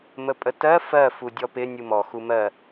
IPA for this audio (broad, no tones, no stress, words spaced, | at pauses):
məpʼətɜ fɜ fudʲɔpɪ nʲumɔ xumɜ